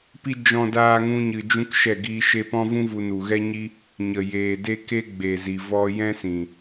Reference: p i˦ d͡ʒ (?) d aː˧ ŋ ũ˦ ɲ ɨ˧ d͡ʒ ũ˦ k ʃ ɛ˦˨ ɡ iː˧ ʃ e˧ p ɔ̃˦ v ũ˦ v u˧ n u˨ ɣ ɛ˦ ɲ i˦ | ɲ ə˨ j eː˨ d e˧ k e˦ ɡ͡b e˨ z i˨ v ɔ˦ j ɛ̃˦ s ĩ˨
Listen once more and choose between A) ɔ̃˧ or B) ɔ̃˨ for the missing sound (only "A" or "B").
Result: A